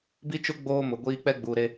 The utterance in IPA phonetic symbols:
bi˦t͡ʃʊ˦ ɡ͡boː˦mʊ˨ɡʷiː˦ k͡pɛ˦ ɡ͡buː˨ɾe˦

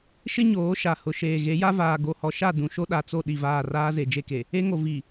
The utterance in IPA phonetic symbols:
ʃɪ˦ ɲoː˨˦ ʃa˨hʊ˨ ʃeː˨ɣe˨˦ja˦ vaː˨ɡo˨hɔ˨ʃa˦˨ dũ˨ʃo˦ɗa˨t͡so˦˨ ɗi˦˨vaː˦˨ raː˦ze˨d͡ʒe˦˨ke˨ | e˦ŋo˨ vi˨

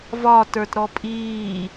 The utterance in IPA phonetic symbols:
vɒ tə˞tɾɔpʼiː

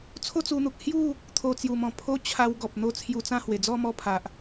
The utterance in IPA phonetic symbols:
t͡sʰo˥˧t͡su˧n̪u˨k̚ hju˥˧ | t̪ʰo˨˩t͡sju˨˩mɔ̃˨˩ pʰo˦t͡ɕʰa˧w ɡɔ˨p̚n̪o˧ t͡sʰju˧t͡sã˥˧hwe˨˩ d͡zɔ˥˧mɔ˧pʰa˨ʔ

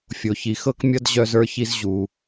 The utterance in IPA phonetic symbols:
fʲo˩çi˩ xɤ˥kmʲʌ˥d ʑœ˦zə˞˦çi˦z ʑu˩

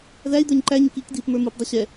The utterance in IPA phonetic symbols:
ðæi̯d̪ə˞ɲ ǃæɲɪk ikdiːp mə˞mupdˤʊ ɕɛ

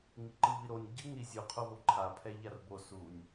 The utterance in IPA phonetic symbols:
ŋiǃɯviɾonʲ ɟɯŋ ɾizʲu qʰovoǃʰa pʰɛʎarbo sunʲ

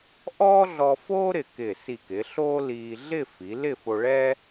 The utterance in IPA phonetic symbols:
ʔɔː˥ɮɔ˧foː˥ ɾɪ˧˩kɪː˧˩ si˧˩kɪ˩˧ ɬoː˥liː˧ ɮɪ˥˧fi˩˧lɪ˥˧fo˧ ɭɛ˥

